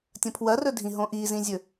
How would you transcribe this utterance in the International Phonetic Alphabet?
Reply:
tʲɐ̃pʰwɐrɵdʱĩ ɦõʔizĩzʲɵ

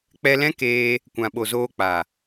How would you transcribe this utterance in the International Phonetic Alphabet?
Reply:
k͡pɛ˧lɛ̃˦keː˧ | kʷã˨ɓo˨zoː˧ k͡pa˨

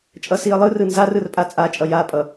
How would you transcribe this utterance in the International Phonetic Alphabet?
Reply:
t͡ʃʼʌsiə̯lˠɯrɯ nzar ɯrpʼat͡sʼat͡ʃʼʌ japʼʌ

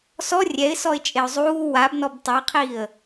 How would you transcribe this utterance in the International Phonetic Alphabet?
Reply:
sɔ rʲɛɪ̯sɔɪ̯t͡ʃʼeʊ̯ zˤuː wabnɔb tˤaqʰiːə̯

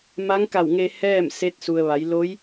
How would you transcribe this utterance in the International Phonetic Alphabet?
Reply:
ma˧˥ŋka˧˩wŋe˧ hɛː˥˨mse˧˥t̚ su˩ə̯ʋa˩˧j lo˧˥j

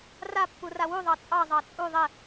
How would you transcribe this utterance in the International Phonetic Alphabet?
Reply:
rapːura wuðˤɑ t͡sʼɑzˤɑ t͡sʼu ðˤɛ

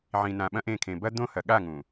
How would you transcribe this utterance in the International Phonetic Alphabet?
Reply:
ʕĩ˨nã˨ɓɐ̃˦ʔẽ˦˨ kʰẽ˨bɐ˦ d̪õ˦ hɐ˨ɠa˦˨ ŋũ˨

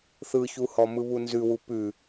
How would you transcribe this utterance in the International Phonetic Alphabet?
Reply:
θɯçuhɔ mɯβunzʉwu pʉ

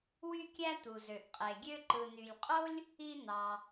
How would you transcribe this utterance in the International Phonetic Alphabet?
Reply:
wy˦kʲæ˦ t̪u˩zø˩ʔqʼe˩ɡʲø˦ ǃɯ˩n̪y˩lʲqʼo˥lʲ | i˦n̪ɑ˨

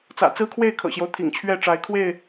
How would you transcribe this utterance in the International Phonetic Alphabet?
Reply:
t͡sä̰˨˩t͡sɹ̩˦kʰwe˥˨ɪ̯ kʰɤ̰˨˩ɕjo˦ʊ̯ t̪ʰḭ˨˩ŋt͡ɕʰɥɛ˥˨ʈ͡ʂa˨˦ɪ̯ kʰwe˥˨ɪ̯

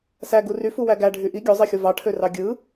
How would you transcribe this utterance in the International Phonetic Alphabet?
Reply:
sæ ɡuryfu wæɡæ ɖʱyʔi ɡʲozˤixʲo vɑʈʰørɑ ɡʲɯ

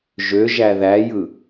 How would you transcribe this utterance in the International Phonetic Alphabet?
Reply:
ʒø ʒæðæjɯ

